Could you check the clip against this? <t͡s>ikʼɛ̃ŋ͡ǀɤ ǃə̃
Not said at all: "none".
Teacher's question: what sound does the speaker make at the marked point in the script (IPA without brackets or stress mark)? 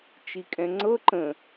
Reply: t͡ʃ